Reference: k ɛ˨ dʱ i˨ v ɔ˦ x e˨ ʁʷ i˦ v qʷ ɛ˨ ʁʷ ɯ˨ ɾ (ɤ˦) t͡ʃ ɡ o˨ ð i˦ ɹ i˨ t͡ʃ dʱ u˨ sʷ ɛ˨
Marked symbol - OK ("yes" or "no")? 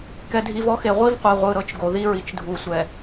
yes